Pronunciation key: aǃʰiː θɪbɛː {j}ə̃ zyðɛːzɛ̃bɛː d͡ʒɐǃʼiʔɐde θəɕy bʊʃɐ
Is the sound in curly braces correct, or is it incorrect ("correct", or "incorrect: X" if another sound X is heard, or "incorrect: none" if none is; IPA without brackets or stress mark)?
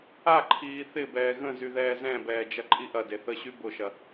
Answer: incorrect: ɣ